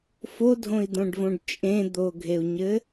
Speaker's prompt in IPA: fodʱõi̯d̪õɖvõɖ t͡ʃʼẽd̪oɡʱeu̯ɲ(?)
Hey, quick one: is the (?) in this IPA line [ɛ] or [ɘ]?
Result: ɘ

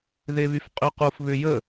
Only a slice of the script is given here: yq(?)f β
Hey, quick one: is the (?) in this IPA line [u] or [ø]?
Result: u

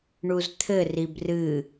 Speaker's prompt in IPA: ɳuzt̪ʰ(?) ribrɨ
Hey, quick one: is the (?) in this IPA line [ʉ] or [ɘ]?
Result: ɘ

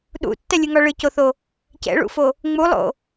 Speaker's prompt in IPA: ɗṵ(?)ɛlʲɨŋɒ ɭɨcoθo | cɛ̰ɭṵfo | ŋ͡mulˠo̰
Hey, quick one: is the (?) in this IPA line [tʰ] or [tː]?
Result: tː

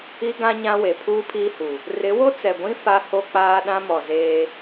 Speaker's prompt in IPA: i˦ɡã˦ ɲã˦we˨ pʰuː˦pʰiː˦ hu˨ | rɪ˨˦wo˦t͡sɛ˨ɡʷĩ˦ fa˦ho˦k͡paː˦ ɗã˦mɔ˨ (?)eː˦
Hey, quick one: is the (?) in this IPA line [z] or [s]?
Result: z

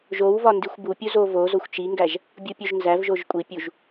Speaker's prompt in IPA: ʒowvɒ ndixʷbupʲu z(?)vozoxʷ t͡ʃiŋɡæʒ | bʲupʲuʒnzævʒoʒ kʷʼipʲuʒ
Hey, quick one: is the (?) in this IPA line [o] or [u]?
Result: o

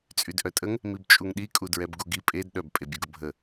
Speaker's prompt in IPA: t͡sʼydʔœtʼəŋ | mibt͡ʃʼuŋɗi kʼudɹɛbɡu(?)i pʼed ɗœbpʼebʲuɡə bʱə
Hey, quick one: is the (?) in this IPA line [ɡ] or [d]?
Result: ɡ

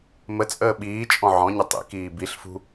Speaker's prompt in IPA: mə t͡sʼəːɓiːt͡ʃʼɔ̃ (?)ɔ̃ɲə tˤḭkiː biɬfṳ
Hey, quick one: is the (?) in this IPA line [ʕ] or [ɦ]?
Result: ʕ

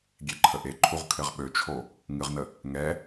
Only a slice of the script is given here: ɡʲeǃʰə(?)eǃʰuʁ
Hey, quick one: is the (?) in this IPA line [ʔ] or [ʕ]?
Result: ʔ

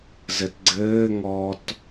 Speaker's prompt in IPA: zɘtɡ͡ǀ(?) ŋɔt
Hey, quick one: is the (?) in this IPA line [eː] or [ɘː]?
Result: ɘː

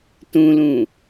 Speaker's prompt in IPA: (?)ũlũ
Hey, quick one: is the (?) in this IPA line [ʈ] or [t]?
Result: t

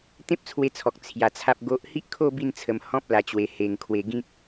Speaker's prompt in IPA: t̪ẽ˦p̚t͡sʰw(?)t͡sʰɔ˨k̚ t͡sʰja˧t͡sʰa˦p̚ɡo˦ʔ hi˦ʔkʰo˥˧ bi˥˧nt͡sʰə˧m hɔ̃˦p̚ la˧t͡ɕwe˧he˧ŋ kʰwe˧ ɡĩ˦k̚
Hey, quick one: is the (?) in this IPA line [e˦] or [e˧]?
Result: e˧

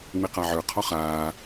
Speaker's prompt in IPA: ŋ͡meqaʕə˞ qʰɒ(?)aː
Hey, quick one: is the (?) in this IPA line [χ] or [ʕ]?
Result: χ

